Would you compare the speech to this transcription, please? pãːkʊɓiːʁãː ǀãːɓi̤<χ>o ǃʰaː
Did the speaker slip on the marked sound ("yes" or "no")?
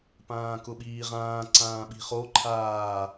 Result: no